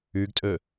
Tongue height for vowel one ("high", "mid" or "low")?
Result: high